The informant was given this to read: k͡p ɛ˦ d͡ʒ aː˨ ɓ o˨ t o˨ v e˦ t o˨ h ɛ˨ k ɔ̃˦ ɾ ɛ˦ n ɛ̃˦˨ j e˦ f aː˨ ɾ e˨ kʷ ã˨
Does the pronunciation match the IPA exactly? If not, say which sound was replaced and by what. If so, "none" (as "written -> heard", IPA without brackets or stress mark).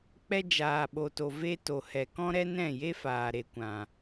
none